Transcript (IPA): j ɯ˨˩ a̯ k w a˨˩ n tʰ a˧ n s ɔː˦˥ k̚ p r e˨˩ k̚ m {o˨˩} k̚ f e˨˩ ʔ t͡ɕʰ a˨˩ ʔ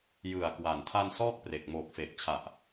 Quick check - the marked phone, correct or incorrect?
incorrect